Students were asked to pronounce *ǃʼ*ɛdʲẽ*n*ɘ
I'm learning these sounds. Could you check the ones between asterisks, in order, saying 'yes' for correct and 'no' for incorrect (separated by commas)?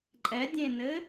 yes, yes